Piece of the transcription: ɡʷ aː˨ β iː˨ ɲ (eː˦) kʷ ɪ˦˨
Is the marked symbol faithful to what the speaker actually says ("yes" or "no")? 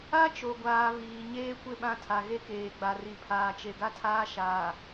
yes